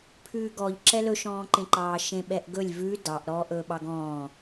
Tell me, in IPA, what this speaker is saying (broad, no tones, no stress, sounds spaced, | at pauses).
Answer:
pʰ ʉː ɡ ɔ ʎ ǁ ɛ l ɵ ʃ ɔ̃ː ǃ ẽ ǃ ɑː ʃ ẽ ɓ ɛ ʔ ɡ ɵ lʲ v ʉ d ɑ ʔ ɾ ɔː ʔ ɵː ɓ ɑ ɡ ɔ̃ː